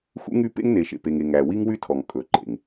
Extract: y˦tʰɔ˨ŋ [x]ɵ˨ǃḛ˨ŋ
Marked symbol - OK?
no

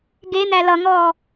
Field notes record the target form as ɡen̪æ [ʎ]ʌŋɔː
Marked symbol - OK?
no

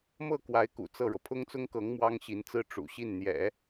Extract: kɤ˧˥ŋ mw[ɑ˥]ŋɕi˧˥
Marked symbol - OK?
yes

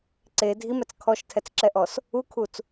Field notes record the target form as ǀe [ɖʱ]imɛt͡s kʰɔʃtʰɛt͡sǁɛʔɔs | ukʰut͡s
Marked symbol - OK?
no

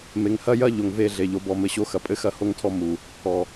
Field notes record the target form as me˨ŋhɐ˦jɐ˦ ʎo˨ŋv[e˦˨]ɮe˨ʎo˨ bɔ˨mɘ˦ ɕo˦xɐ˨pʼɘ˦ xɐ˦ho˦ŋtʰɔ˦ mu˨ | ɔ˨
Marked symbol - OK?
yes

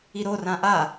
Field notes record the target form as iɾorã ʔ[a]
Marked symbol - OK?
yes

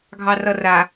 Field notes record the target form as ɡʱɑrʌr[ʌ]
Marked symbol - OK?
no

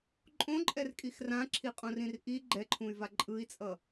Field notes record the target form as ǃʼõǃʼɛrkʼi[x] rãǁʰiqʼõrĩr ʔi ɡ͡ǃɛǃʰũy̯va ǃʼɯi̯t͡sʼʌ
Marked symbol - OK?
yes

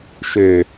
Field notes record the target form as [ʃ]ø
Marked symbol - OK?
yes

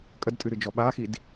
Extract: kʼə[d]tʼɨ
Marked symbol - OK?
yes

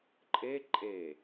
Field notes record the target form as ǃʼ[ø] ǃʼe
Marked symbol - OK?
no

